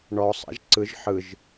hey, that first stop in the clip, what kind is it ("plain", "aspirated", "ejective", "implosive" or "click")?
click